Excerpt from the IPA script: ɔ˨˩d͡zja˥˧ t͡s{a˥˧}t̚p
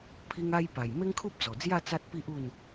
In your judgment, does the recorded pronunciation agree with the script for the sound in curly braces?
no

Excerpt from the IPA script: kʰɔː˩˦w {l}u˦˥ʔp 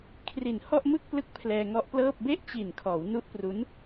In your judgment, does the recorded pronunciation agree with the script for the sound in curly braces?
no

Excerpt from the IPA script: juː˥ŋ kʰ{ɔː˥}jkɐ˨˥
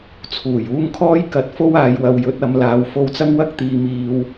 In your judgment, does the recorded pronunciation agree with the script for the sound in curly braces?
yes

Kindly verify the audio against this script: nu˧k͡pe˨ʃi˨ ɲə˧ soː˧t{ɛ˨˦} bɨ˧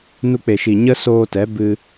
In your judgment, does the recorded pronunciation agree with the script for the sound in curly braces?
yes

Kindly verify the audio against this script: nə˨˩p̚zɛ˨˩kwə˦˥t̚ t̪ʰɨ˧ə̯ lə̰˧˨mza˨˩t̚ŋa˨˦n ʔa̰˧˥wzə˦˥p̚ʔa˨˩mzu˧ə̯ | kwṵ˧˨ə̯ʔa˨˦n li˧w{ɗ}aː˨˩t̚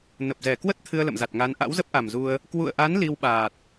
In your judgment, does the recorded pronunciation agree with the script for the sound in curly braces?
no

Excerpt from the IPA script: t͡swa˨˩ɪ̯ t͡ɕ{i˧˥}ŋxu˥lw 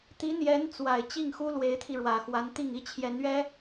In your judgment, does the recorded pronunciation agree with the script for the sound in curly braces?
no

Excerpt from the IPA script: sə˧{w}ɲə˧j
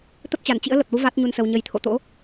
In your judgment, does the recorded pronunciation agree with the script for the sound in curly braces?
yes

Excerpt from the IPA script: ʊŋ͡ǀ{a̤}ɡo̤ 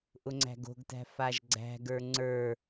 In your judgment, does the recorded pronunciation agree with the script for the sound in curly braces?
no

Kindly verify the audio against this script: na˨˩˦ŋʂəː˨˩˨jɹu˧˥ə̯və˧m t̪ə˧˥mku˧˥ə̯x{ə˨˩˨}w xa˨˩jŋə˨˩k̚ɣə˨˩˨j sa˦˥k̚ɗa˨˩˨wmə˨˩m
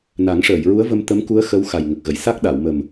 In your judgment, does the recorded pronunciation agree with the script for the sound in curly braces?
no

